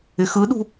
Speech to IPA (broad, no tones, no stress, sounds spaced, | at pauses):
ɪ x ɯ ɗ ṳ